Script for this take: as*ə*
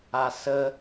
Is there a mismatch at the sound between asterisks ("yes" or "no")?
no